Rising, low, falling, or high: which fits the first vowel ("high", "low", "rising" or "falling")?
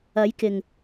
rising